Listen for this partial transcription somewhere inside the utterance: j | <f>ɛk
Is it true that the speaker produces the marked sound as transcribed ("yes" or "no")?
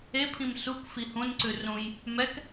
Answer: no